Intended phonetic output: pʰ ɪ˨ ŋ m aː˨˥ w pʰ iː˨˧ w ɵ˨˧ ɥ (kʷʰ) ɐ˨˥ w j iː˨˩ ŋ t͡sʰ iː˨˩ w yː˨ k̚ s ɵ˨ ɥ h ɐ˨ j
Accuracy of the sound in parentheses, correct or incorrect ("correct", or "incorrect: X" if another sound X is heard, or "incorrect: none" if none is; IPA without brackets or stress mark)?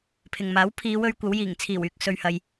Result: incorrect: kʷ